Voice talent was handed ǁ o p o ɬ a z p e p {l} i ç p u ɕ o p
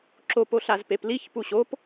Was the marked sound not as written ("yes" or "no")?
no